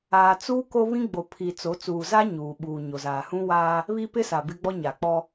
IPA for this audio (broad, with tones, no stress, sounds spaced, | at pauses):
aː˨ t͡s uː˦ k o˦ β ĩ˦ ɡ͡b o˨ pʰ i˨ t͡s o˨˦ t͡s uː˨ z a˦ ɲ uː˨ ɓ uː˨ ɲ o˨ z aː˨ h ũ˦ w aː˦ | β i˦ p ɪ˦ s a˨ b ɪ˦ ɡ͡b ɔ˦ ɲ a˨ k͡p ɔ˦